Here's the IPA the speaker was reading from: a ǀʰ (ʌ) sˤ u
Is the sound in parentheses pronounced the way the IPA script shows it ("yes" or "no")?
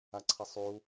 yes